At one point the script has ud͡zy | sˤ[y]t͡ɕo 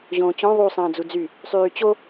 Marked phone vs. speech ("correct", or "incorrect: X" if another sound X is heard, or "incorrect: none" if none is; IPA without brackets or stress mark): incorrect: yː